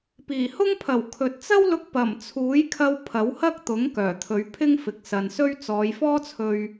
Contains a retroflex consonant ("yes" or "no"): no